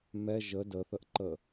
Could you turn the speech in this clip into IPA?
m ɛ ʒ ə d ə θ ə ʔ ǃ ə

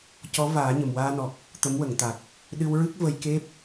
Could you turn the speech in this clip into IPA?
c ɔ˧˥ v aː˨˩˦ ɲ ə˨˩ m w aː˧ n ɔ˨˩ k̚ | t̪ ə˧˥ m w ə˨˩˨ ŋ t̪ a˨˩ k̚ | ɗ ɨ˧ w ɹ ɨ˦˥ k̚ v ə˧ j k e˦˥ p̚

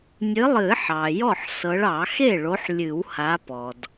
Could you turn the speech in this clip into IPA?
nʲ ɨ˨˦ lˠ ɨ˨˩˦ ħ ɑ˩ j ɔ˥˩ ħ s ɤ˨˦ ɭ ɑ˨˩˦ x e˥˩ ɭ o˨˦ ħ lʲ ɨ˨˩˦ w h a˨˦ p ɔ˩ d

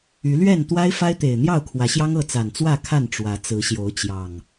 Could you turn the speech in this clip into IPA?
y˨˦ l ɥ ɛ˥˨ n t̪ w a˦ ɪ̯ f a˦ ɪ̯ t̪ e˨˩ ɪ̯ n̪ j ɑ˥˨ ʊ̯ kʰ w ä˨˦ ɕ j ɑ˦ ŋ ɤ˥˨ t͡s a˨˩ n t͡s w ä˥˨ kʰ a˥˨ n ʈ͡ʂ w ä˨˦ t͡s ɹ̩˨˦ ɕ j o˨˦ ʊ̯ t͡ɕ j ɑ˨˩ ŋ

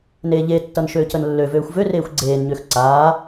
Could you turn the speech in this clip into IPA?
n eː ʎ e tː ʌ n ʃ øː c ə n lː ø v øː xʷ v ø r eː xʷ ɡ͡ǀ eː n ɲ ø x ǀ aː

